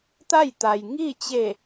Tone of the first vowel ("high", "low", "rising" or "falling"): falling